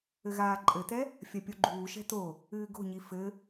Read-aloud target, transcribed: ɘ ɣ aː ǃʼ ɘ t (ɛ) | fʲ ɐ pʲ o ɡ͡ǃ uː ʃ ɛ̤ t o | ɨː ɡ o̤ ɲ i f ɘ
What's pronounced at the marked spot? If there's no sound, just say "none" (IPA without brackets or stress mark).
ɛ